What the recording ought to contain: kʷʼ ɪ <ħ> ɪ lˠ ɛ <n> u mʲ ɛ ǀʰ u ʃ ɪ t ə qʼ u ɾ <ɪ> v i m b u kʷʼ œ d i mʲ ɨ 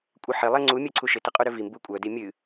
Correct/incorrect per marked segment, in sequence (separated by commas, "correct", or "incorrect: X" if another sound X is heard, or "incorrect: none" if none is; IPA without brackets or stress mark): correct, incorrect: ŋ͡ǀ, incorrect: ʏ